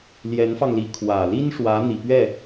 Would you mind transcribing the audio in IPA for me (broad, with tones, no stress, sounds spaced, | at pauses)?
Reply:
l j ɛ˧˥ n f ɑ˧ ŋ l i˧˥ kʰ w ä˨˩ l i˥ n ʂ w ä˧˥ n̪ i˨˩ p ɥ ɛ˥˩